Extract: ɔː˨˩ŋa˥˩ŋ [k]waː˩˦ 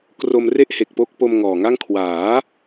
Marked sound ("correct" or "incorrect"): incorrect